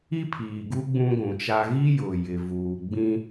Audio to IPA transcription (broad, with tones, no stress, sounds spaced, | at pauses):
i˦ pʰ iː˨ ɡ u˦ ɡ͡b ũ˦ ɡʷ ũ˨ t͡ʃ a˦ ɣ i˦ j ʊ˨ j ɪ˨ v uː˨ ɡ͡b ĩ˦